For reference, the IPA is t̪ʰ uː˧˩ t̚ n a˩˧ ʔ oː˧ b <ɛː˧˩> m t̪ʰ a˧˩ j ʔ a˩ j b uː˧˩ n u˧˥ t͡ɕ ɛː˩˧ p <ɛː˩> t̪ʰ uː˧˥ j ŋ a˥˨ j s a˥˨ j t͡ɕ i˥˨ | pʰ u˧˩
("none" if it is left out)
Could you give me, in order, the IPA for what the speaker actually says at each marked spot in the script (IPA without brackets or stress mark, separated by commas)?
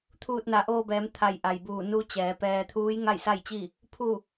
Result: ɛː˩˧, ɛː˧